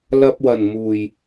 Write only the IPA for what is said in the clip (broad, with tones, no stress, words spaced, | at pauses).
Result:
lɐ˧p̚wɐ˨˩nmuː˨˩j